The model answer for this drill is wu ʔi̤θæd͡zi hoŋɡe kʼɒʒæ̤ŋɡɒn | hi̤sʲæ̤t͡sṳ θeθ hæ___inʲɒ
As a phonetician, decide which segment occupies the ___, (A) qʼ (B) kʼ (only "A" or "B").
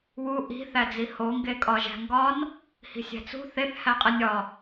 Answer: A